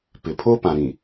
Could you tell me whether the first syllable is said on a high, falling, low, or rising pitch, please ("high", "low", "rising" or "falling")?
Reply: low